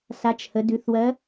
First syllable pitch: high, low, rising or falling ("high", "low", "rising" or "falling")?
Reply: rising